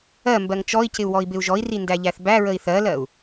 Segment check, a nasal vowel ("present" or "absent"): absent